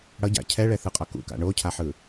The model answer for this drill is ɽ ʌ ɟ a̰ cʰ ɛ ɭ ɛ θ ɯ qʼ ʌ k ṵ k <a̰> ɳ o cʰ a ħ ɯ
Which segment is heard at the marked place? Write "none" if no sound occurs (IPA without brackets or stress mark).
a̰